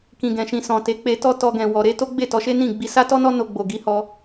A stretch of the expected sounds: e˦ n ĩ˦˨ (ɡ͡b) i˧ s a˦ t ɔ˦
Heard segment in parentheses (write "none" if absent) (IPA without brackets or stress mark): ɡ͡b